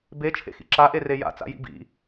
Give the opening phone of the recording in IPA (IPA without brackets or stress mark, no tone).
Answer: b